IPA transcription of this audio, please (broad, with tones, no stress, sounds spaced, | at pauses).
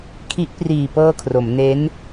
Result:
kʰ i˦˥ ʔ p r iː˨˩ p ɤː˧ kʰ r o˩˦ m n e˦˥ n